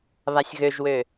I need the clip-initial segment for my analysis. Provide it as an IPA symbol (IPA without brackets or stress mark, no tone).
β